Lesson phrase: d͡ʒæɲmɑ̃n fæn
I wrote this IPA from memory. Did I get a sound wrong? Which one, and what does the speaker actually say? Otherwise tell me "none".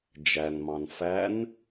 ɲ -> n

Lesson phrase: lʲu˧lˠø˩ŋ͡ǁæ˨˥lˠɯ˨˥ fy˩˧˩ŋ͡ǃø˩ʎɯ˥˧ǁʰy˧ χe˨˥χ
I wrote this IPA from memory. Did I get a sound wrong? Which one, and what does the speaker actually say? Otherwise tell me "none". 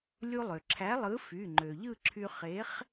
ŋ͡ǁ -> ǁʰ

